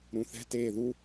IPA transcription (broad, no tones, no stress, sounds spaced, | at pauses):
ɾ ũ θ ɛ̤ t eː ð u